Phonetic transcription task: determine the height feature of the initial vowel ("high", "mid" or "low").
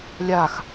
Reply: low